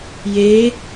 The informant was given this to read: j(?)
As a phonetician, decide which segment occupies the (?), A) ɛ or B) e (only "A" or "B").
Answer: B